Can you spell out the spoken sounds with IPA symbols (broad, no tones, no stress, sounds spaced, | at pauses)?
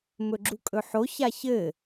m ɵ ɡ͡ǁ u kʼ ɵ ħ o ç a ç ɘ